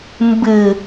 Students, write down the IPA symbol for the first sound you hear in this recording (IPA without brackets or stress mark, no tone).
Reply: m